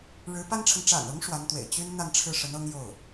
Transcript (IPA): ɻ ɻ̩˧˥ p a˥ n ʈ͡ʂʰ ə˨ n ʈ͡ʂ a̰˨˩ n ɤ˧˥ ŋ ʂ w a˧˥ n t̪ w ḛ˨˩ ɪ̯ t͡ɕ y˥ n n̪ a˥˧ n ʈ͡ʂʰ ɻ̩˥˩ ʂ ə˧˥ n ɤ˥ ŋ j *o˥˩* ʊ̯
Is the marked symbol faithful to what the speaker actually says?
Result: yes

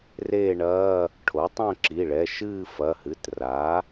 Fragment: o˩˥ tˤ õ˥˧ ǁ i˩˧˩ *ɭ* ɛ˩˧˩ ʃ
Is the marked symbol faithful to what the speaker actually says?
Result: yes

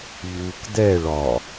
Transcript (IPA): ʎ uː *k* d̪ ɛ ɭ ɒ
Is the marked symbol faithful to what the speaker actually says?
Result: yes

